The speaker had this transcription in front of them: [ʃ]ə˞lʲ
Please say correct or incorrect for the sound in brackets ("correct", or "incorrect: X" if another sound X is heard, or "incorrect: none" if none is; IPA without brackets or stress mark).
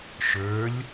correct